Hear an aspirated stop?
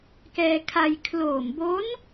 yes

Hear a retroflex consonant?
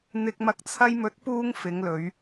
no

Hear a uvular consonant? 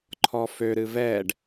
no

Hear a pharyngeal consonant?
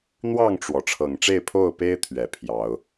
no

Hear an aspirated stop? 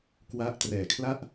yes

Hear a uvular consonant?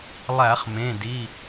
yes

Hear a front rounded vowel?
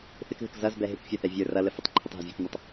no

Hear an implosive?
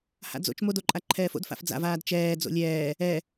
no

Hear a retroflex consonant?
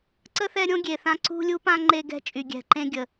no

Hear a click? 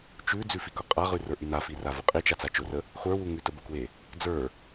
no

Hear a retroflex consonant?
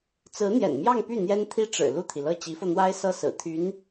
yes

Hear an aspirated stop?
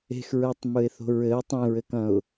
no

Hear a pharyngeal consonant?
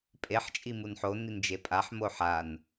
yes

